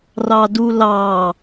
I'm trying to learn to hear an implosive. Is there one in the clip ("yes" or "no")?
no